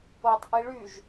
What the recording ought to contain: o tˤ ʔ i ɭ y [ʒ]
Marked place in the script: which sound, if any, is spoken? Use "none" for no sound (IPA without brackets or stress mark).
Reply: ʒ